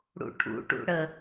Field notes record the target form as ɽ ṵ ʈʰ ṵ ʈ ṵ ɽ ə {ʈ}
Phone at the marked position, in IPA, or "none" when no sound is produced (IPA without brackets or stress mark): none